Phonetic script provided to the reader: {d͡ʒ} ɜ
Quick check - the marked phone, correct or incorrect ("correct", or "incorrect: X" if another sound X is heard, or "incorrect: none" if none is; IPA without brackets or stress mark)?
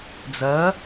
incorrect: d͡z